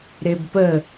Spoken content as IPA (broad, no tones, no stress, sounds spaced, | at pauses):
ɾ e b p ə